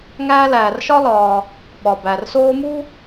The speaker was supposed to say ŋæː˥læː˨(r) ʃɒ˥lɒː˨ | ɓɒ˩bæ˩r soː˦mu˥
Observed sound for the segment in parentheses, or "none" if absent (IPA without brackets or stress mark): r